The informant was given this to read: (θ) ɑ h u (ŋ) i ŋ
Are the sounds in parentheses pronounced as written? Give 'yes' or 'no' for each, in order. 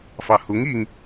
no, yes

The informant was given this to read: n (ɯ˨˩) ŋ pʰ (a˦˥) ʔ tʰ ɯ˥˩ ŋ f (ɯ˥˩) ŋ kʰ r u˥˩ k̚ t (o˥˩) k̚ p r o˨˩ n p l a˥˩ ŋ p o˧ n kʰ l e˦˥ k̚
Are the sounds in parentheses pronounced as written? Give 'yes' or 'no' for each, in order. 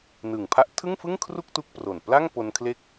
yes, yes, yes, no

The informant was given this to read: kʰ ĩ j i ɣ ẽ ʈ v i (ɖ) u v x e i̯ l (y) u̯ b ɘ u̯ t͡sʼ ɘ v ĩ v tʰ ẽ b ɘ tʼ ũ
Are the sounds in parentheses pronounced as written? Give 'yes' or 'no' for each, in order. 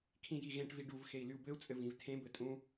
yes, yes

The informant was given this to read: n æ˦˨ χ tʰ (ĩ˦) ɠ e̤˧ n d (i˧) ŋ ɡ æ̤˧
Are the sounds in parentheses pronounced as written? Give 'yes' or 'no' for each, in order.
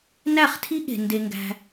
no, no

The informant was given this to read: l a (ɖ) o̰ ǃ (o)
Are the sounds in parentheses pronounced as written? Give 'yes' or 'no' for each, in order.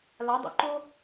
no, yes

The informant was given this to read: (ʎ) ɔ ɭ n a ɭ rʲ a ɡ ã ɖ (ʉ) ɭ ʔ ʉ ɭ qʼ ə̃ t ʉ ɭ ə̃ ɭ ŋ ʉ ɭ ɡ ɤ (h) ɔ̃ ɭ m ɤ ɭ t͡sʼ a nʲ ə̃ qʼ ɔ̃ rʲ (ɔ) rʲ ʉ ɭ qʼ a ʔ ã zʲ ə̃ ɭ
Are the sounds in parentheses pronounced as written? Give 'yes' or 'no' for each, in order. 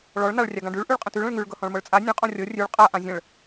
no, yes, yes, no

